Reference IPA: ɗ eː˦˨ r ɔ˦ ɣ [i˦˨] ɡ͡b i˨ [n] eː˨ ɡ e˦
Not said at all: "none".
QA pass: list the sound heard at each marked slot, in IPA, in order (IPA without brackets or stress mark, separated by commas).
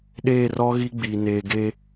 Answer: i˦, n